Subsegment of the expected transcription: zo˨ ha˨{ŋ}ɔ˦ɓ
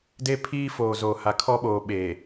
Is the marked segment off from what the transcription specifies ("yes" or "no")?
yes